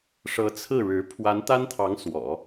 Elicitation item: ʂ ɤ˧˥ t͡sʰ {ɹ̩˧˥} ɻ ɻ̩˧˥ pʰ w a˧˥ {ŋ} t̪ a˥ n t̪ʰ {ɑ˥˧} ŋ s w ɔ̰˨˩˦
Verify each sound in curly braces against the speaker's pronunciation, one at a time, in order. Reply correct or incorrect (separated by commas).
incorrect, incorrect, incorrect